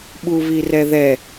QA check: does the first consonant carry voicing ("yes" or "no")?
yes